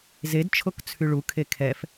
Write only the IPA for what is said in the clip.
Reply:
zedt͡ʃʰok t͡sʰyɭukʰe kʰɛf

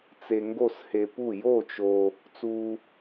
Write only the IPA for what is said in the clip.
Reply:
t͡se˧ŋɡo˥˨she˧pu˥˨ jo˥˨t͡ʃo˧ | t͡su˧

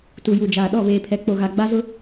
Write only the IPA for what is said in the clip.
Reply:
tu˨ju˨d͡ʒaː˨ ɗɔ˦˨βeː˨pʰɛ˨ k͡po˨ɣa˨ ɡ͡ba˦zʊ˦

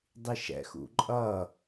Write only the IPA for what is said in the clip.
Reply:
dˤiʃɛ̰xṵ ǃʼʌ

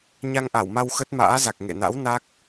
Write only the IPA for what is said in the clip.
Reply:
ɲa˧ŋʔa˧˩wma˧w xə˦˥t̚ma̰ː˧˥za˨˩k̚ ŋḛ˧˨na̰˧˥w na˦˥k̚

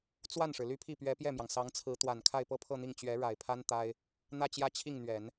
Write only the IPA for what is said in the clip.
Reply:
t͡swa˥˩nʂɻ̩˩ ly˥˧pʰi˥˩pɥɛ˧˥ pjɛ˥˩mjɑ˩ŋ sɑ˧˥ŋt͡sʰɹ̩˧˥t̪wa˨˩n kʰa˥˧ɪ̯pɤ˥˧pʰɤ˥˧n̪i˥˩ŋ t͡ɕɥɛ˧˥ɻa˨˩ɪ̯pʰa˥n t̪a˥ɪ̯ | n̪ä˥˧t͡ɕjä˥˧t͡ɕʰi˥˩ŋn̪ɥɛ˨˩˦n

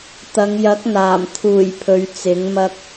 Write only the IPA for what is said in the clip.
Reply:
t̪ɐ˨˧ŋjɐ˨˥k̚n̪aː˨˩m t̪ʰuː˨˩j pʰɵ˨˧ɥt͡sɪ˨˥ŋmɐ˥k̚

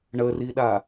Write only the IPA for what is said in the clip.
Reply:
ɳəriɗa

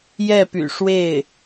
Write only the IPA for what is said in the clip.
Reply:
jɛ˥˩py̰˨˩ʂwe˥˩ɪ̯

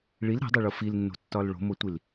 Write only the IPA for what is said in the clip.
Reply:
ɭil ɾæ̤dˤeɭo filnːo̤tːɒl ɭo̤motʷil

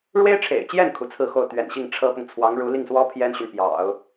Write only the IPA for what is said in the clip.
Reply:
ɻwe˥ɪ̯ʈ͡ʂʰḛ˨˩ɪ̯t͡ɕjɛ˥˩n kʰu˧˥t͡sʰɹ̩˥˧xo˥˩ʊ̯ t̪ɥɛ̰˨˩nɕi˥˩ŋ ʈ͡ʂʰɤ˥pʊ˨ŋ t͡sʰwɑ˧˥ŋɻu˧˥li˥˩ŋswɔ˥ pʰjɛ˥nɕy˨n pjɑ̰˨˩˦ʊ̯

